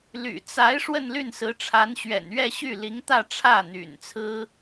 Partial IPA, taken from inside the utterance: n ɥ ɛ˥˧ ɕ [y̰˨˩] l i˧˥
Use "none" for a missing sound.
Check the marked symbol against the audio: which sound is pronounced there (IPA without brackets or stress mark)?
y˥˩